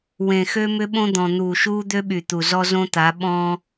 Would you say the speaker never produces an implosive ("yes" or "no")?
no